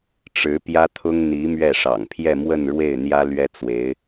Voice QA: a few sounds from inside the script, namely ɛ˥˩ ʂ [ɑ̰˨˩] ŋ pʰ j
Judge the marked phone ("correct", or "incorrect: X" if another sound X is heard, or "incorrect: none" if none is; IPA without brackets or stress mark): correct